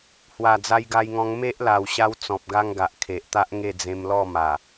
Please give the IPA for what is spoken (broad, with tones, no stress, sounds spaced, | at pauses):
h w a˨˩ d͡z a˧ j ɡ a˧ j ŋ ɔ̃˧ ŋ m e˦ ʔ l a˨˩ w ɕ a˧ w t͡s ɔ̃˨ p̚ ɡ a˦ ŋ ɡ a˨ ʔ kʰ e˨ ʔ t̪ a˦ ʔ ŋ e˥˧ d͡z ẽ˧ m l ɔ˥˧ m a˨˩